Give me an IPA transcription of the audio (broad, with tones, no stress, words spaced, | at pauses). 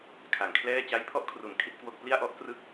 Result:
kʰa˩˦ŋkʰlɛː˥˩ t͡ɕa˦˥jpʰɔ˦˥ʔkʰru˩˦n kʰi˥˩t̚kwo˥˩k̚ pli˥˩a̯ʔɔ˦˥ʔ krɯ˦˥k̚